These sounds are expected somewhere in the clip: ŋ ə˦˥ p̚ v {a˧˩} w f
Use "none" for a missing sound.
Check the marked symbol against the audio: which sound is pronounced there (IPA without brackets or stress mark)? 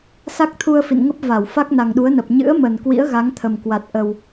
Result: a˧˩